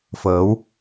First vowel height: mid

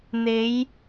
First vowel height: mid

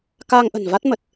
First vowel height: low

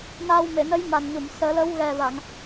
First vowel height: low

